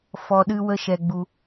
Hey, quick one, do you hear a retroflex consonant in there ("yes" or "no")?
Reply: no